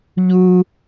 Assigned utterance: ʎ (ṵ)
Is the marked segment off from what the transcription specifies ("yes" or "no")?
yes